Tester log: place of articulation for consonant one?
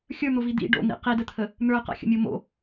velar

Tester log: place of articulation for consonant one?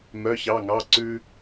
labial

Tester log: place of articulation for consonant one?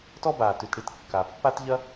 alveolar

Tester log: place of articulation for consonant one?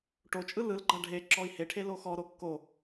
retroflex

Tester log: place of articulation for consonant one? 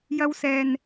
palatal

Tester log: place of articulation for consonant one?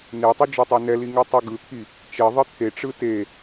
alveolar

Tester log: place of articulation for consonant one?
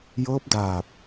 palatal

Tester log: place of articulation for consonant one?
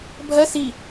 labial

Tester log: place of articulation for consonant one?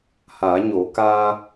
glottal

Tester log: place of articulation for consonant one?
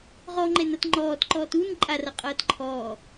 uvular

